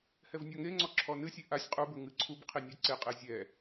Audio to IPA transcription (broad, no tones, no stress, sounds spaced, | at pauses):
h ɛ v nʲ ɔ ŋ e ŋ͡ǀ ɔ ǁʰ ɔ n ɨ sʲ e ʔ a sʲ qʼ u b ɘ ŋ ɨ ǀʰ u b qʰ i nʲ ɛ ǀ e qʼ e zʲ ɛ